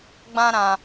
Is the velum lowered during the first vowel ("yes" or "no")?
yes